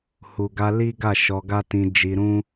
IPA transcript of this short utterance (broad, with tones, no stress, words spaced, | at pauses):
hu˨ɡa˧ li˦ ɡa˦˨ʃɔ˧ɡa˦tĩ˧ d͡ʒi˧ɾũ˦